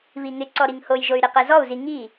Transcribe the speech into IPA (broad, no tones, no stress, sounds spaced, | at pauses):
β i ŋ ɪ ǀ ɔ ɾ i ŋ h o j ʒ o y̯ ɾ i q ɛ z ɔ u̯ z i ŋ i